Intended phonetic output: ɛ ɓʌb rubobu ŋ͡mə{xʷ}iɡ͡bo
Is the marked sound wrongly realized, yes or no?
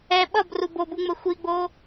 no